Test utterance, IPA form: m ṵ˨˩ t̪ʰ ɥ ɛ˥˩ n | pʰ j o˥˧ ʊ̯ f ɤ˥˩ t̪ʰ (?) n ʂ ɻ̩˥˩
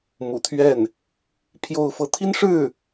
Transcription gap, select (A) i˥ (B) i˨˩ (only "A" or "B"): A